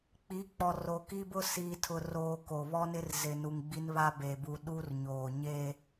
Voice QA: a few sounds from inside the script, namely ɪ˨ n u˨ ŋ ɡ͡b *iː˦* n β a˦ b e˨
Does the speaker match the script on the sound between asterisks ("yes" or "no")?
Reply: no